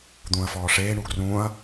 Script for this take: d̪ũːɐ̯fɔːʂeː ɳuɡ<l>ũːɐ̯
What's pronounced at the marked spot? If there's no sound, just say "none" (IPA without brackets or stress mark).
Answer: r